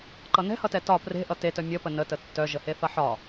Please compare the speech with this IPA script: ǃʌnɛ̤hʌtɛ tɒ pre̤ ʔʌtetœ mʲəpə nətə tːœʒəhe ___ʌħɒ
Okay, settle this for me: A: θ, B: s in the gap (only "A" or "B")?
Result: A